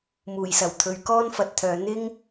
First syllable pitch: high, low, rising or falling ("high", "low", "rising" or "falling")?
low